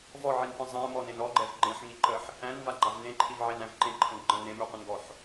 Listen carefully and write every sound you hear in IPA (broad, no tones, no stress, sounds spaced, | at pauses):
v ɔ ʕ i n p ə̃ zˤ æ̃ m ɔ n ẽ n ɔ ɡ͡ǃ ɛ v ɡ͡ǃ ẽ ħ ŋ i ǃ ə ħ | æ̃ n v a ɡ͡ǃ a v n ẽ ǃʰ i v ʕ e n æ̃ v ǃ ẽ ǃʰ ə̃ ɡ͡ǃ ə̃ n ẽ m y qʷ ə̃ n ɡ ɔ ħ